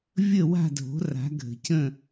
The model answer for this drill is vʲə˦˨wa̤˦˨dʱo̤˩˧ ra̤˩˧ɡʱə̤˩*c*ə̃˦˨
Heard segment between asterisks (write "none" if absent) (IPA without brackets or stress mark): c